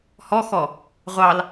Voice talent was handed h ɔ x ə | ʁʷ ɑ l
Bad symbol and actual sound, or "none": ə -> ɔ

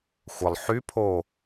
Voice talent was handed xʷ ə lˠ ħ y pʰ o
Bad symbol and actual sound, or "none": none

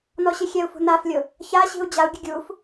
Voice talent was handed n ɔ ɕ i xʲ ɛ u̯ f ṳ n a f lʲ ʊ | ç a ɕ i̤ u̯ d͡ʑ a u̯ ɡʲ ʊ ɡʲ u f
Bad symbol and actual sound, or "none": none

